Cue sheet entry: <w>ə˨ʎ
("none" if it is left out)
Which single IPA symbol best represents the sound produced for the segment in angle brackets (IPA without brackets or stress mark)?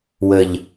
w